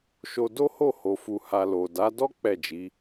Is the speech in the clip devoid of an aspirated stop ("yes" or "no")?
yes